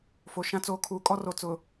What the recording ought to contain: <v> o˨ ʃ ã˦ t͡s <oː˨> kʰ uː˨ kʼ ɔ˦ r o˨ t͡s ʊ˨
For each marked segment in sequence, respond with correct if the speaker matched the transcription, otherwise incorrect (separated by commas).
incorrect, correct